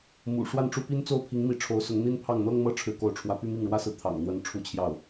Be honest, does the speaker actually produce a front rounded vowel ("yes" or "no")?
yes